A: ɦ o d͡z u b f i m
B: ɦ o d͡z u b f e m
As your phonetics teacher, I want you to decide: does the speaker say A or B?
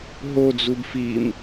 A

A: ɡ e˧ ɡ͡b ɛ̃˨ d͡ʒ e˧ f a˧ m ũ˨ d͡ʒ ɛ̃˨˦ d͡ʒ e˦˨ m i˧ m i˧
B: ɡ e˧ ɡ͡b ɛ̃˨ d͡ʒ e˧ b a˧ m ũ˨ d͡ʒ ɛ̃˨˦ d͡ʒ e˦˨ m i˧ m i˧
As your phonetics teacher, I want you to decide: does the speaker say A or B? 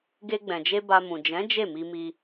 B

